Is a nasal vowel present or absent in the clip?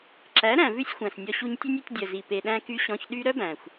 present